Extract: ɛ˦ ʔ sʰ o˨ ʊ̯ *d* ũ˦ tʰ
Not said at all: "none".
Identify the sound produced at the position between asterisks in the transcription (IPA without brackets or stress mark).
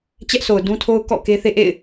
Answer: d